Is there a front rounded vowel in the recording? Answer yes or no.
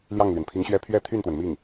yes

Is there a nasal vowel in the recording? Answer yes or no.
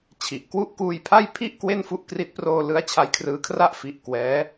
no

